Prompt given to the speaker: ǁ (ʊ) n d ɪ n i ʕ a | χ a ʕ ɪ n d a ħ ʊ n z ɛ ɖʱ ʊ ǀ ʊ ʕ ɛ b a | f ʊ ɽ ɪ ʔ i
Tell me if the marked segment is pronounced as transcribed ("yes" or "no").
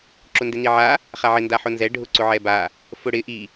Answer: yes